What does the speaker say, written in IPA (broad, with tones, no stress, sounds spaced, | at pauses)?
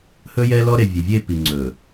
h ɵ˦ j ɛ˦ l ɔ˦ ɾ e˨ vʲ e˨ vʲ e˦˨ p i˨ ŋ͡ǀ ɵ˨